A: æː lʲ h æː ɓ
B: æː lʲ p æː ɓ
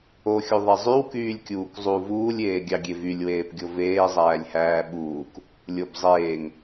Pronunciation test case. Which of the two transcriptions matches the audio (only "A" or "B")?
A